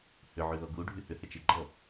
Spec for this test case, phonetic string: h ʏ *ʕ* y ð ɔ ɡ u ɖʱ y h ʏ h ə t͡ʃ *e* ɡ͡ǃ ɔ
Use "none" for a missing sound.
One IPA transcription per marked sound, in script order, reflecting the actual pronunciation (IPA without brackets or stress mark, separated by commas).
ʕ, e